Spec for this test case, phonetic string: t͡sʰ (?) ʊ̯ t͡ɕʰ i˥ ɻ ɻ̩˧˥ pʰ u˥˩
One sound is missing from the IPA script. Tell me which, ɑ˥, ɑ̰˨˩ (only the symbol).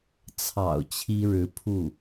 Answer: ɑ̰˨˩